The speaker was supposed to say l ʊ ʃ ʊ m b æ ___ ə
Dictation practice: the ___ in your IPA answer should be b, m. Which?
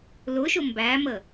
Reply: m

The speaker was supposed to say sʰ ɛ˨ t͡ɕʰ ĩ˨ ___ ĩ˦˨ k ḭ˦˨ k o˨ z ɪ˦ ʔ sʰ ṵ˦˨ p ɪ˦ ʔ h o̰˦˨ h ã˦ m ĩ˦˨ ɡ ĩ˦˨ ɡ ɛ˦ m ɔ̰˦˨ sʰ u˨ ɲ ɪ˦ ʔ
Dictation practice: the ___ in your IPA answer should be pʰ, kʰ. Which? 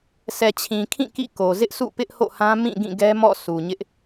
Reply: kʰ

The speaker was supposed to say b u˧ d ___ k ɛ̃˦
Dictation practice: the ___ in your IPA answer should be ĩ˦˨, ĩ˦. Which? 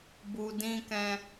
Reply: ĩ˦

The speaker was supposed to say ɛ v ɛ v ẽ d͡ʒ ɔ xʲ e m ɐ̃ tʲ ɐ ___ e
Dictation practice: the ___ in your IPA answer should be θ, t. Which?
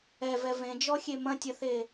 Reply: θ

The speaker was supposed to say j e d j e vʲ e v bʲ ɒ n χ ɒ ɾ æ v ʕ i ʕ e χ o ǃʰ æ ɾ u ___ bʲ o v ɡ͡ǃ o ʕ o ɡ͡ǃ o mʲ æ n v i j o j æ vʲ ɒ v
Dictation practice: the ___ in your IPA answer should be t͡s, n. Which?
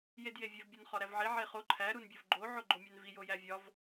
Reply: n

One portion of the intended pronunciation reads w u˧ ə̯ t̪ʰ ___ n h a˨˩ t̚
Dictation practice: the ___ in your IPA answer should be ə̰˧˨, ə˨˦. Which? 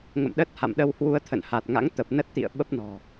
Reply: ə̰˧˨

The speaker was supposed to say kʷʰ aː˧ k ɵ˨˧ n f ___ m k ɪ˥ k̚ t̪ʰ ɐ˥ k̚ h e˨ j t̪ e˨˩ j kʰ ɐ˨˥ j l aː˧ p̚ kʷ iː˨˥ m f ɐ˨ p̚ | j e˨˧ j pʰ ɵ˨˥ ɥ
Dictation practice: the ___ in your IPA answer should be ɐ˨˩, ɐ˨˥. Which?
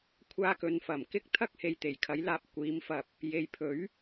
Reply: ɐ˨˩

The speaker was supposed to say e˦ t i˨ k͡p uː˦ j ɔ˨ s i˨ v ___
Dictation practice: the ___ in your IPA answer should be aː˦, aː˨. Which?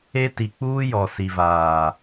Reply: aː˨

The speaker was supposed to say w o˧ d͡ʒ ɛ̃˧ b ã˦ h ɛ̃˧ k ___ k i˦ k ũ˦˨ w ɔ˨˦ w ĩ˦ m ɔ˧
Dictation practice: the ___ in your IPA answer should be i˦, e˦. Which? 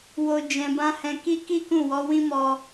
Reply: i˦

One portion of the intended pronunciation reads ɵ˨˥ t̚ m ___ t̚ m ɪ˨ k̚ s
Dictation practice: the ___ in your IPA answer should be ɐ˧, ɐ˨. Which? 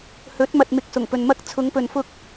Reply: ɐ˨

